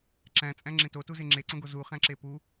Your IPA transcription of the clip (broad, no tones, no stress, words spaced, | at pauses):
ǁæ̃ t͡sʼæ̃ŋ͡ǁẽtotu zeŋ͡ǁeǀõɡo zuχæ̃ǁe pu